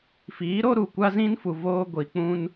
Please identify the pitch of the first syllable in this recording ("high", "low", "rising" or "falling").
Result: rising